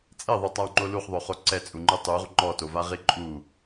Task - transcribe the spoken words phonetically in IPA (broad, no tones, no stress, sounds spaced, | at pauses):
t͡sʼ e ðˤ u tˤ a w ŋ͡ǃ o l u χ ðˤ o χ o ǀ ɛ t͡sʼ u ŋ͡ǃ u tˤ u ʁ ŋ͡ǃ ɔ t o v a ʁ i ǃʼ u